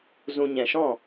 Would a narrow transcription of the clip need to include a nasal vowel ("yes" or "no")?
yes